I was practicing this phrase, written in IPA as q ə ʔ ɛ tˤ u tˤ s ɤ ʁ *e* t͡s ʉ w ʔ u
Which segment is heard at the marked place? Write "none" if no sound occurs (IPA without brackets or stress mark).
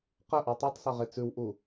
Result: e